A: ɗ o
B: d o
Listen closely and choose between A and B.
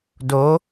B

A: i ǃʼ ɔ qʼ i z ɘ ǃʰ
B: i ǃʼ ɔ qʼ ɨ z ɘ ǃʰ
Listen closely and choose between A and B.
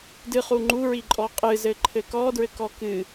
B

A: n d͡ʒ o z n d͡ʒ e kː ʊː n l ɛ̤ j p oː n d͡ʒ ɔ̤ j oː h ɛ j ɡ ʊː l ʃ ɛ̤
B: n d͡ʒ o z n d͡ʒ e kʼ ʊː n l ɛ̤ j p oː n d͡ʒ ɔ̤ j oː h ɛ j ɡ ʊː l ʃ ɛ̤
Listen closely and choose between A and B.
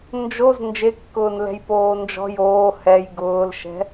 A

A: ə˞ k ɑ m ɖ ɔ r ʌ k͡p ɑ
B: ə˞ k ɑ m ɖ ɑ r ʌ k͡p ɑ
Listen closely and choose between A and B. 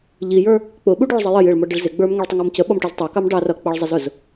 B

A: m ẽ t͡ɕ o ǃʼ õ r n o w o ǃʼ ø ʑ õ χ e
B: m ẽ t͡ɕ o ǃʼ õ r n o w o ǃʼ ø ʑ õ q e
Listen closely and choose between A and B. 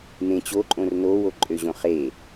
A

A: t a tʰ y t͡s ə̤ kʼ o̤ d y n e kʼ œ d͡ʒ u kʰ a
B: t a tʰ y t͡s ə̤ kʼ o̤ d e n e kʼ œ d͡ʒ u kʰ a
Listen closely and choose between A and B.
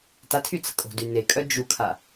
A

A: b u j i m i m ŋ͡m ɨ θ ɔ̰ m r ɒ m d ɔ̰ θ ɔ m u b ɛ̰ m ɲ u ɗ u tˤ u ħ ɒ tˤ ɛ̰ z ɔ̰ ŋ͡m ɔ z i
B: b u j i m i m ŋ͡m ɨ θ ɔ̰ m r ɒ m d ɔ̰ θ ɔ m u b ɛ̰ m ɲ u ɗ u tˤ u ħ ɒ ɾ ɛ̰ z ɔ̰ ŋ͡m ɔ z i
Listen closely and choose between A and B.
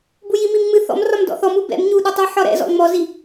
B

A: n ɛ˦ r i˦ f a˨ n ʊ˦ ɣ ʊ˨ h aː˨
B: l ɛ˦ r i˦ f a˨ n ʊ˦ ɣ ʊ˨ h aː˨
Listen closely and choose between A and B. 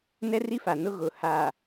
A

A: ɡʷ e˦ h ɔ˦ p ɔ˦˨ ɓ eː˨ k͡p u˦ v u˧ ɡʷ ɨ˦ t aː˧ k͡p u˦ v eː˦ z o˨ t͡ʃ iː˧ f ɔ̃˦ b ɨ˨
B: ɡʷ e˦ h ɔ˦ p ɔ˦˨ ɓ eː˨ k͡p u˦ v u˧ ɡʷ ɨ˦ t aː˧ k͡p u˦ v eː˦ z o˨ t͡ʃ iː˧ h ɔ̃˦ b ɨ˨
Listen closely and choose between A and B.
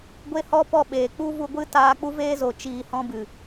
B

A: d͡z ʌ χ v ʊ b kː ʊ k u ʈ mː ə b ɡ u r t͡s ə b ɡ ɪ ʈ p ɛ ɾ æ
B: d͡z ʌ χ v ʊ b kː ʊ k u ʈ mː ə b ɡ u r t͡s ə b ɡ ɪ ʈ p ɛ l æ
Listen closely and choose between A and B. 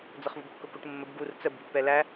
B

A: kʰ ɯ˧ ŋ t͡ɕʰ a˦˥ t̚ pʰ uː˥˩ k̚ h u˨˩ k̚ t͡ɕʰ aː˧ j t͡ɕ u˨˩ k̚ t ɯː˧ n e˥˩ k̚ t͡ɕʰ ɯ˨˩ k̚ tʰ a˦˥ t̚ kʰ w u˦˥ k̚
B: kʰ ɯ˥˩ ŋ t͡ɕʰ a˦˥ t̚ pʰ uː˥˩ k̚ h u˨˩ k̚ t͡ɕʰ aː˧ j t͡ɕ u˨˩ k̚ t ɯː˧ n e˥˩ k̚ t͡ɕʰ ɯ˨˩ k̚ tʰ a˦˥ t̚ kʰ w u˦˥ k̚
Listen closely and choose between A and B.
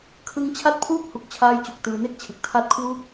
A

